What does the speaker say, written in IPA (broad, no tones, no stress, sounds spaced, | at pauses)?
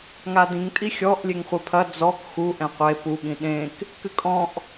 ŋ a d ĩ ŋ tʼ i xʲ ɔ ʔ lʲ e ŋ χʷ ɛ pʰ ɐ d͡z ɔ k x u ʔ ɛ̃ qʷ e p u ɠ ĩ ɗ ẽ k | k ɨ kʼ ɔ̃ ʔ